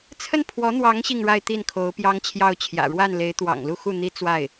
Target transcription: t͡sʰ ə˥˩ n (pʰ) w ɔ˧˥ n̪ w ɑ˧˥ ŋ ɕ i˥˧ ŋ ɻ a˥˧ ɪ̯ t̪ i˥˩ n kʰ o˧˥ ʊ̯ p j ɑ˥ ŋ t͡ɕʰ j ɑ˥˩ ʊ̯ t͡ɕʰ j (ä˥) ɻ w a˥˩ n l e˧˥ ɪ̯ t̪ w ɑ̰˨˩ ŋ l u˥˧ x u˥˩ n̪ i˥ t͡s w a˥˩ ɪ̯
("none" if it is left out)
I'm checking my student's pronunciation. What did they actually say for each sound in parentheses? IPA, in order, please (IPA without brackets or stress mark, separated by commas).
pʰ, ä̰˨˩